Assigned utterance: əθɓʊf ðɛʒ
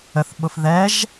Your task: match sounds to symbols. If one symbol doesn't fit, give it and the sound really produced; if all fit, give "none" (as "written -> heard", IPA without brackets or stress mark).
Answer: none